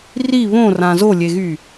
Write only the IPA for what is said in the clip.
ri βõrã zolʲeɣy

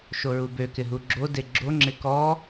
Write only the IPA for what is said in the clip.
ʃoɹubø kɪɦuɡ͡ǁo deɡ͡ǁo ŋ͡ǁɪkɔ

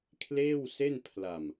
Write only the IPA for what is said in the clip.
kʰleː˥˩wse˥˩npʰla˧m

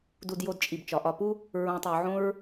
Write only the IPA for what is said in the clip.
du˧djo˧d t͡ʃʼi˨bt͡ʃɒ˨ʔɒ˧pu˦ | ɹõ˧tˤo˧ʕõ˦ɹ

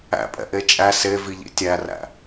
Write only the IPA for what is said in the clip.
æ̰pʼɛ̰ʔe t͡ʃʼæ seviʎḭ tʲæræ̰

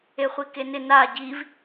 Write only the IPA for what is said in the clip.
eχʷikenɪ na ɟiv

